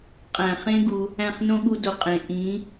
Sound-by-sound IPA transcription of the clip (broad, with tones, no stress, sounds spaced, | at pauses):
qʼ æ̃˨ χ ẽ˦ ɡ u˧ | æ̃˦˨ χ n õ˦ ɠ u˧ d o˨ qʼ ẽ˨ ʔ ĩ˨˦